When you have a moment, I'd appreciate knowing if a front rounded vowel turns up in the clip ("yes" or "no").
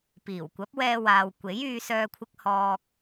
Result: yes